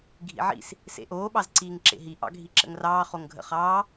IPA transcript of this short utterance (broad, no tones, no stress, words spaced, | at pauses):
ɡʱḭʕḭs | sḛʔoː ɓɑzǀiːŋǁḛɦi ʔɑ̰ɡʱiǁə̰ŋrɑː χoŋɡʱə̰χɑː